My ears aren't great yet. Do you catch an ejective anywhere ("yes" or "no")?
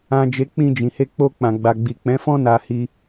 no